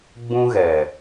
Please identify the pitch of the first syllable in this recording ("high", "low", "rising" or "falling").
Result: high